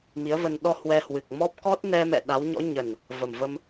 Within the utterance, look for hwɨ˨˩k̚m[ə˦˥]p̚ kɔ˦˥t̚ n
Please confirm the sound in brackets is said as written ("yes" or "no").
no